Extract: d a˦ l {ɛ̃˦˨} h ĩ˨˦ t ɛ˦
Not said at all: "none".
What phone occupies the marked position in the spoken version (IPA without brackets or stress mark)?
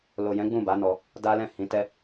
ɛ̃˦˨